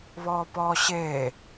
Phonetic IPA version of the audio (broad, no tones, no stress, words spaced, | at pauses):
βɔːpɔːɕeː